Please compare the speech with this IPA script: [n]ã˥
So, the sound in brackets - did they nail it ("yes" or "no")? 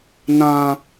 yes